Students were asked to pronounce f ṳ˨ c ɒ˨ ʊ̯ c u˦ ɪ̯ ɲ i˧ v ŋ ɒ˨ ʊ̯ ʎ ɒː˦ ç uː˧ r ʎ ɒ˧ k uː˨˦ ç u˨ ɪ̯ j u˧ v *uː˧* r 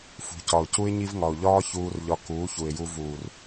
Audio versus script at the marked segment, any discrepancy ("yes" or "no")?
yes